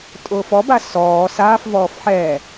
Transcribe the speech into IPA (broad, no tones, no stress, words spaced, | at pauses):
tʼʊːfɔ basɔː saːfvɔːf ħɛ